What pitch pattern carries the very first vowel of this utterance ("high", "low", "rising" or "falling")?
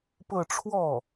falling